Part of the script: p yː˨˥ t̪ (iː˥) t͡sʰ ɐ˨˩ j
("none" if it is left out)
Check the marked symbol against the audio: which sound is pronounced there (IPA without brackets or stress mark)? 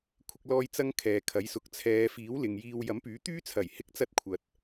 yː˥